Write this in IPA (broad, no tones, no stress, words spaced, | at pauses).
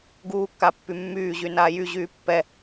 ɡuːkːapːy mːyːʑynaː jyʑyː pːɛ